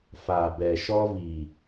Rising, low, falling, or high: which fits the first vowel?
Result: low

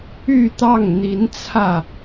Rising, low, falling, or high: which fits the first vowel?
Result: falling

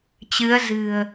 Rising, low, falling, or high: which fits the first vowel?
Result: rising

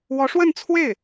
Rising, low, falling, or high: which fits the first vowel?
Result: rising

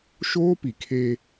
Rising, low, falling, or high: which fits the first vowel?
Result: high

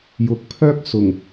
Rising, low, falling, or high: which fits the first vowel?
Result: low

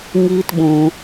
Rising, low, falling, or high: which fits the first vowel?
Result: high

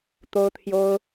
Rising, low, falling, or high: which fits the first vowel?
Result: high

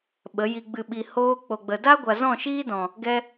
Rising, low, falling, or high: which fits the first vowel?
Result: rising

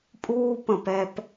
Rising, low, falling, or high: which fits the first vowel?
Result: high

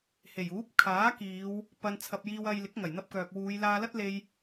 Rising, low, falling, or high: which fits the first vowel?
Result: low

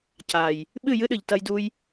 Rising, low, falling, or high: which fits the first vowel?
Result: low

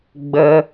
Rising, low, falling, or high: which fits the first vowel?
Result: high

